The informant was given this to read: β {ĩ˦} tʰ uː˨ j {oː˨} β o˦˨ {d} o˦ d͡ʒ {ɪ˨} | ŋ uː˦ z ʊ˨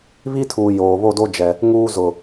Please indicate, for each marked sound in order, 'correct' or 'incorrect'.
incorrect: i˦, correct, correct, incorrect: ɛ˨

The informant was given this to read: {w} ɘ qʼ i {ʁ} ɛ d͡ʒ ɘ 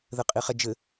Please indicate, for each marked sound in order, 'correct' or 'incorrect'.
incorrect: ð, incorrect: χ

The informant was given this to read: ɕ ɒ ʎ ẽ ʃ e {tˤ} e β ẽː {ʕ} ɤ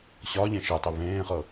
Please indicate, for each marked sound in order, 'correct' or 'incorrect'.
correct, incorrect: χ

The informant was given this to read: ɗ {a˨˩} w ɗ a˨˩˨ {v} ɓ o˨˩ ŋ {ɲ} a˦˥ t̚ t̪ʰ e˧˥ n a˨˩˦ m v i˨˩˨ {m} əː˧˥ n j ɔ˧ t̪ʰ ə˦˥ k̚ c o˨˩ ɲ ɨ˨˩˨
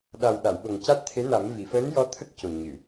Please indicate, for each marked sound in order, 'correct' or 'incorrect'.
correct, incorrect: w, incorrect: c, incorrect: f

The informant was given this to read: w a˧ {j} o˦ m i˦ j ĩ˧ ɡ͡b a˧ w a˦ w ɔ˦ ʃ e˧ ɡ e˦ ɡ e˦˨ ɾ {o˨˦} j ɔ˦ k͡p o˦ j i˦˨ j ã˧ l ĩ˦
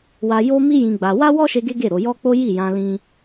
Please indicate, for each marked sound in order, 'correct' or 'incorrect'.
correct, correct

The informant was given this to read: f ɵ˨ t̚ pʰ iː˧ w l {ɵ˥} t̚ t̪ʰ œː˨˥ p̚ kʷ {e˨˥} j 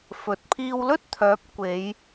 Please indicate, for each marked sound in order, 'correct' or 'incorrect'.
correct, incorrect: e˨˧

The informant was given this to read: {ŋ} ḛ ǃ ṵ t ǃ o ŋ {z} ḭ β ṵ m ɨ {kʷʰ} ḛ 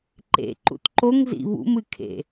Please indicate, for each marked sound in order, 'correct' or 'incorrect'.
incorrect: ǃ, correct, incorrect: kʰ

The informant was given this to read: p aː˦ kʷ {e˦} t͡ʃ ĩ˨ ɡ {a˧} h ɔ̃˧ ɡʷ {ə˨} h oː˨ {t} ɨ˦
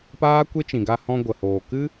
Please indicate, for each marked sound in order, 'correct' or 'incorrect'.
correct, correct, correct, incorrect: k

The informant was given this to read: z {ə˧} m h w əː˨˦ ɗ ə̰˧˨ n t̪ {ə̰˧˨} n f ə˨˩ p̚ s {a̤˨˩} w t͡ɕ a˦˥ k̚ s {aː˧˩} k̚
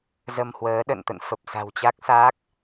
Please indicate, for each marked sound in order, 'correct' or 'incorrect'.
correct, correct, correct, incorrect: aː˦˥

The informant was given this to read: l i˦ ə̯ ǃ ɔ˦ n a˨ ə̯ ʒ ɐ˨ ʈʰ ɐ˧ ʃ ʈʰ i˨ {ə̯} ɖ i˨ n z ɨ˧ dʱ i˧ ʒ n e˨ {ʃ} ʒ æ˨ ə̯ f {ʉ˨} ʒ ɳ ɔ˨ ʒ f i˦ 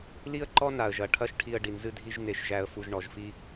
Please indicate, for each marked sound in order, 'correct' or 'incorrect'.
correct, correct, incorrect: u˨

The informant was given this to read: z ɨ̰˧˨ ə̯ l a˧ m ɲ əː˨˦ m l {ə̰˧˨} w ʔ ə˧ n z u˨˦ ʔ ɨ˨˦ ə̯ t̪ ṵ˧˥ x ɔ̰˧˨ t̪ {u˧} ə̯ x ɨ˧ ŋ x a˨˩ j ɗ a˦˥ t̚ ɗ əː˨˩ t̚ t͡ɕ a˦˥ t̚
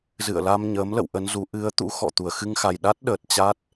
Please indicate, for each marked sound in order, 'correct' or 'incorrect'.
correct, incorrect: u˧˩

